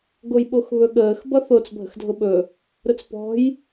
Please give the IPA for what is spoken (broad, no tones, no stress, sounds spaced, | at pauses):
ɡ o j ɓ o x β ɵ ɠ əː x b ʌ θ o t͡s bʱ ə̤ x dʱ ʊ ɓ ɵ | ɾ ʊ t͡s p ɔ̤ j